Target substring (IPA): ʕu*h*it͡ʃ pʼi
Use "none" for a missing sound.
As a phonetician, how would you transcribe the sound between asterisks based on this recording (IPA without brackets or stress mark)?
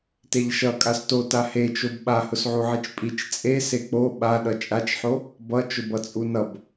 ʕ